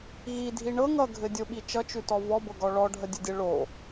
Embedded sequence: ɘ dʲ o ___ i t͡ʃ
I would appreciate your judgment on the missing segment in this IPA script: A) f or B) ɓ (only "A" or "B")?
B